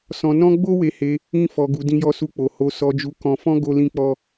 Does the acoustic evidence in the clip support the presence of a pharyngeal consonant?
no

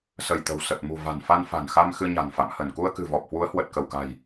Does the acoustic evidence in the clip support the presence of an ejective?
no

